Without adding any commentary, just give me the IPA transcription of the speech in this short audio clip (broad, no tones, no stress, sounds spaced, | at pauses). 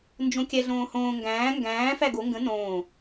n d͡ʒ õ kʲ æ ɮ õː h õː ŋ ɡ æ̃ː ŋ ɡ æ̃ː f æ ɡ o ŋ ɡ ə̃ n õː